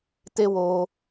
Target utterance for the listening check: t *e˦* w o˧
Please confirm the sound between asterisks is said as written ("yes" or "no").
yes